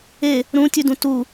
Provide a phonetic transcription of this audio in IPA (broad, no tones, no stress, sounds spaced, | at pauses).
e | ɾ ũ tʲ ʉ d ũ t u